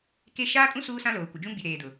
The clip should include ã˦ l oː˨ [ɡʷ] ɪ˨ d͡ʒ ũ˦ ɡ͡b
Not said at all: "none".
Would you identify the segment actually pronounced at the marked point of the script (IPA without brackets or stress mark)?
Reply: kʷ